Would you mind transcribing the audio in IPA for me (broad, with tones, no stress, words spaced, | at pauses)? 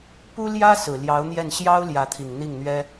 pu˥ ljä˥ sɹ̩˨˩ ljɑ˧˥ʊ̯n̪jɛ˥˩n ɕjɑ˥ʊ̯ ljä˧˥t̪ʰi˨˩ŋ n̪i˥˩ŋn̪ɥɛ˥